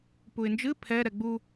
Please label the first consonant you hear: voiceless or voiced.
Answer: voiceless